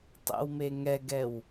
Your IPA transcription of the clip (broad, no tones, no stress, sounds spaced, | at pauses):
tˤ ɛ̰ w m e ŋ ɛ ɡ ɛ w